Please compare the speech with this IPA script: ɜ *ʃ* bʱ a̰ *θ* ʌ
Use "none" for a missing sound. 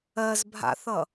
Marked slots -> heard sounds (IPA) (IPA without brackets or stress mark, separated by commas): z, θ